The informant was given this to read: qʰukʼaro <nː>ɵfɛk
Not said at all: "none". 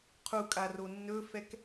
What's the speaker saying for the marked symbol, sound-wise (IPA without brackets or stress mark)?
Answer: nː